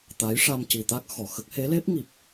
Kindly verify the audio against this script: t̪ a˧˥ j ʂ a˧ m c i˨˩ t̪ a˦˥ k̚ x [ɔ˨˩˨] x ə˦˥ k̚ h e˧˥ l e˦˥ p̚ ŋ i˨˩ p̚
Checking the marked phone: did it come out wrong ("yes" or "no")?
no